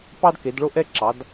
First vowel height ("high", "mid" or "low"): low